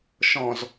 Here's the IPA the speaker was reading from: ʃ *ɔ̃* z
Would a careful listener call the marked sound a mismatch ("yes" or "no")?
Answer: no